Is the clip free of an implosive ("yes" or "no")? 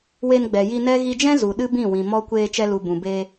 no